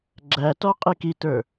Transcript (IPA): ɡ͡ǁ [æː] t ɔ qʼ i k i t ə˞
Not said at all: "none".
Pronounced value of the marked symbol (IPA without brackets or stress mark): æ